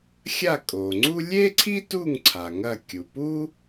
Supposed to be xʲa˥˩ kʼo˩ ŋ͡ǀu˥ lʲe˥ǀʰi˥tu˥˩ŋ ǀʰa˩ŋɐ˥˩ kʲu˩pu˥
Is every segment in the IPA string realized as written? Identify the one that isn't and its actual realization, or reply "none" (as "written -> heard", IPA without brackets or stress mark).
none